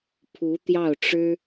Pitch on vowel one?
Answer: rising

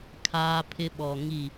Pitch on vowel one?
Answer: high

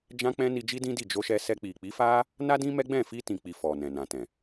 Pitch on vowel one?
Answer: high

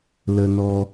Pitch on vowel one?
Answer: low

